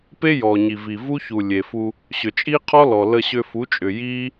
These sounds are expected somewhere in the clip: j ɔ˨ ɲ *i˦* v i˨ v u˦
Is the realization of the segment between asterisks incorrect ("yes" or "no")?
yes